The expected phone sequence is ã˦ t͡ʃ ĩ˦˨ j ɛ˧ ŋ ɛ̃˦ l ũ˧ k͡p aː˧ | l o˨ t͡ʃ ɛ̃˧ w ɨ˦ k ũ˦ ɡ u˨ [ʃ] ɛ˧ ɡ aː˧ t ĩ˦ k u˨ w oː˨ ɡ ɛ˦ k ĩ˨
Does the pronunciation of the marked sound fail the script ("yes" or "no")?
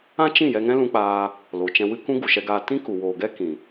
no